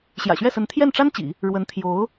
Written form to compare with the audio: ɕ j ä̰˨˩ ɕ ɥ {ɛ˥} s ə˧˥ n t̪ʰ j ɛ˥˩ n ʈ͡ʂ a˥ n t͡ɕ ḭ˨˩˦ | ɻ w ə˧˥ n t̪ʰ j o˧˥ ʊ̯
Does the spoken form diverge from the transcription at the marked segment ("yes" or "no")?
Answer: yes